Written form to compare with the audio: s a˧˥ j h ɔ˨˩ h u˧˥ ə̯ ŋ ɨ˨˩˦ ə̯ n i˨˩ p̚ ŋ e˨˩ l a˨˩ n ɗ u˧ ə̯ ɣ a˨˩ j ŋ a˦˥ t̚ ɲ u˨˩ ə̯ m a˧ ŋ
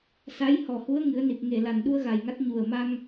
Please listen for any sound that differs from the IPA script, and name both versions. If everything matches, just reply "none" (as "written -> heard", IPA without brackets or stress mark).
none